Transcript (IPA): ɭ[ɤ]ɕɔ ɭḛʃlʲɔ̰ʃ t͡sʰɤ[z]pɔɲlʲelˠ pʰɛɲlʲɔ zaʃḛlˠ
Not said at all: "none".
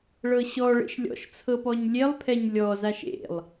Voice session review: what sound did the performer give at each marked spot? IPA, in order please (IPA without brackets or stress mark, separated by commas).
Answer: ɤ, none